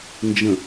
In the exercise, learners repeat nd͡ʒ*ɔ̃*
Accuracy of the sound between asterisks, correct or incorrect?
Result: incorrect